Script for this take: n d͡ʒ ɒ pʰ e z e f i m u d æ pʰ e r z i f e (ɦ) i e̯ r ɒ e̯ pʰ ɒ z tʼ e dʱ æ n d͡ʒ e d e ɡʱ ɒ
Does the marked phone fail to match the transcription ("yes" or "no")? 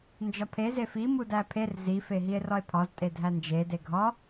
no